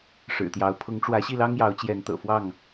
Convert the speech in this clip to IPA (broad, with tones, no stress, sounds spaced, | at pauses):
ʂ ɻ̩˨˩ t̪ j ɑ˨˦ ʊ̯ pʰ ʊ˨˦ ŋ ʈ͡ʂ w ä˨˦ ɕ i˥˨ l ɑ˦ ŋ j ɑ˨˦ ʊ̯ t͡ɕ j ɛ˨˦ n t̪ ɤ̰˨˩ f w ɑ˥˨ ŋ